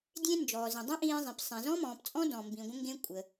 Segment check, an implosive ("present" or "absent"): absent